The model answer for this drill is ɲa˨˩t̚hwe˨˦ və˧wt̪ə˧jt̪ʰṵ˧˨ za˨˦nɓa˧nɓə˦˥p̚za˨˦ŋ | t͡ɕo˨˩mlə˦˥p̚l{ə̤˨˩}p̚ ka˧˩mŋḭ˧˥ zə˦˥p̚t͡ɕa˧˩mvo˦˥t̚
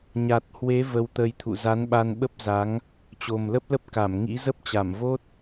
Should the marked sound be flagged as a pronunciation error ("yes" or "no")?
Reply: yes